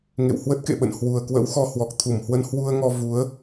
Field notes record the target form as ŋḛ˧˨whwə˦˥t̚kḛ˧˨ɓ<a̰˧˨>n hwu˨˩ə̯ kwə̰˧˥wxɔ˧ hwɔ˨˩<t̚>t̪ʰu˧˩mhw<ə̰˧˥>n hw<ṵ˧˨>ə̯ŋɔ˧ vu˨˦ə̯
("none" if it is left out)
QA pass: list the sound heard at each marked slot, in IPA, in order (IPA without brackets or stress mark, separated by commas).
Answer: ə̰˧˨, k̚, ə˧, u˧